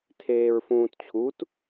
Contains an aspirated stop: yes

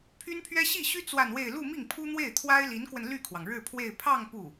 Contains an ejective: no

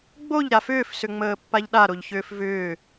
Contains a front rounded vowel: yes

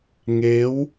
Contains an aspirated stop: no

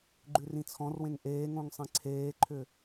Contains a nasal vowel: yes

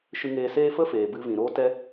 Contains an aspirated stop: no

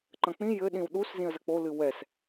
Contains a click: yes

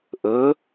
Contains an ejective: no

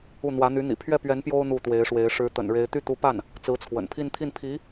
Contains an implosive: no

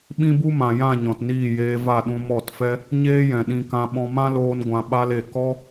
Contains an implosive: yes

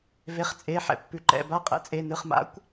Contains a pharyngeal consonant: yes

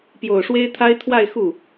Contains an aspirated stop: yes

